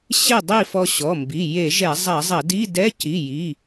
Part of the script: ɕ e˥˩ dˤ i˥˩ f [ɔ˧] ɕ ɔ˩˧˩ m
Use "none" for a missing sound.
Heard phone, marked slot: ɔ˧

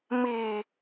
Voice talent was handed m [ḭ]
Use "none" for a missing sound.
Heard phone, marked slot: i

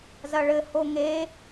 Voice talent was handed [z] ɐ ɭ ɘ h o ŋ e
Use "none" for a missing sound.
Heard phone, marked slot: z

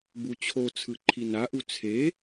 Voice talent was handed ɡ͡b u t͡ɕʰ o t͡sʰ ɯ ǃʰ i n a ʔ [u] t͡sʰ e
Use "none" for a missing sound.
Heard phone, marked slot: u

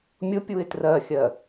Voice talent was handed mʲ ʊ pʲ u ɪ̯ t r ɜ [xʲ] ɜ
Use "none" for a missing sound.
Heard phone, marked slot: xʲ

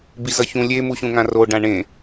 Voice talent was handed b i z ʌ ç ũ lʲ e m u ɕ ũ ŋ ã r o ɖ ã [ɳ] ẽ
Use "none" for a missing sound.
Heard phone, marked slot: ɳ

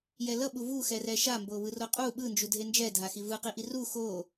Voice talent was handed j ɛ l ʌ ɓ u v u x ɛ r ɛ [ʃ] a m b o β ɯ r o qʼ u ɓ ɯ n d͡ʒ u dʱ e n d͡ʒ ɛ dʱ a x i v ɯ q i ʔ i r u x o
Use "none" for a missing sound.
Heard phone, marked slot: ʃ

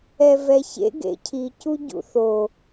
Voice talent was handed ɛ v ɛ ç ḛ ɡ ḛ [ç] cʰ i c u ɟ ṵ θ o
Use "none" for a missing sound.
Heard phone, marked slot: none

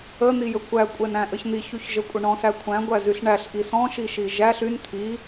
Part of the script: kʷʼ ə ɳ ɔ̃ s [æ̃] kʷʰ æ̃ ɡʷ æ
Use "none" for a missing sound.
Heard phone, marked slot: æ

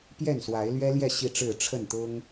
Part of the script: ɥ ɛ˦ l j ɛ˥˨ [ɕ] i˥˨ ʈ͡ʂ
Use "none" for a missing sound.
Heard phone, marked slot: ɕ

